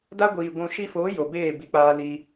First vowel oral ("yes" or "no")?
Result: yes